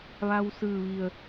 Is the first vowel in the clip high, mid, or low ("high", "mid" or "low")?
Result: low